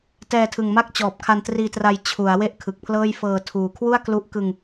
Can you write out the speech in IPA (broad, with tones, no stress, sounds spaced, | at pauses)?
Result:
t ɛː˧ tʰ ɯ˨˩ ŋ m a˥˩ k̚ t͡ɕ ɔː˨˩ p̚ kʰ a˧ n t r iː˧ t r a˧ j t͡ɕʰ u˩˦ a̯ w e˥˩ ʔ kʰ ɯ˨˩ k̚ pʰ l ɤː˥˩ j f ɤː˧ tʰ uː˨˩ kʰ w u˥˩ a̯ k l u˦˥ ʔ k ɯ˧ ŋ